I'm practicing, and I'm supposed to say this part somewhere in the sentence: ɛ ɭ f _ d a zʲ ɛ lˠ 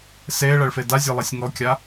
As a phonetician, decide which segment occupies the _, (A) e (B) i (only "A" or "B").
A